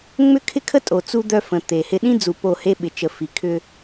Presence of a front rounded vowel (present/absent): present